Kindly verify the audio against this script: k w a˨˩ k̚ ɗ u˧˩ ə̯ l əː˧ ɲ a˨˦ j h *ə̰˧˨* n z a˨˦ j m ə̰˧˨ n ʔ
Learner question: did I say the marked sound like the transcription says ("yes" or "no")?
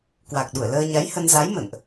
no